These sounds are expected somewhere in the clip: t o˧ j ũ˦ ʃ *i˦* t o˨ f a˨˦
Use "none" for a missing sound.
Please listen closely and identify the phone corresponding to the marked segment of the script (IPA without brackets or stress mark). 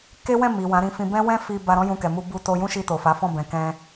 i˧